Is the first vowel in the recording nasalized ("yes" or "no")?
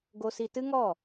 no